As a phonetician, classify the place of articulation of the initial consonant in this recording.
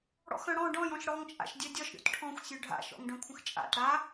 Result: retroflex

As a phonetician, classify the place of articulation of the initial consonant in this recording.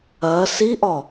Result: alveolar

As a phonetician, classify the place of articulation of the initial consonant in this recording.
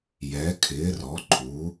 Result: palatal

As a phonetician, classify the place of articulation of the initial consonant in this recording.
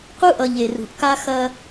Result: uvular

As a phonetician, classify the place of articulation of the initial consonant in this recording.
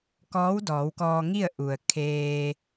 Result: velar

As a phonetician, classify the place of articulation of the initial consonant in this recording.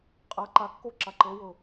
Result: uvular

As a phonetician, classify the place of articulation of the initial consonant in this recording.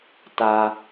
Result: alveolar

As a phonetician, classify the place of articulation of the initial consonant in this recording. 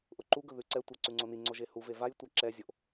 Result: glottal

